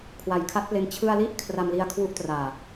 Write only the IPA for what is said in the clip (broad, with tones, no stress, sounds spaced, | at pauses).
kʰ w a˩˦ j kʰ a˦˥ t̚ p l e˧ n t͡ɕʰ ɯ˧ a̯ l i˥˩ ʔ kʰ r a˧ m l i˧ a̯ kʰ w u˦˥ ʔ t r aː˨˩